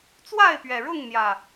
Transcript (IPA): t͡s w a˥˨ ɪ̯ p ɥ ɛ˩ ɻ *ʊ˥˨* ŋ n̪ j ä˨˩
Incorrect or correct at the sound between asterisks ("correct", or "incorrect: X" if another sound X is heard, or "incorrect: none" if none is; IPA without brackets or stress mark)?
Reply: correct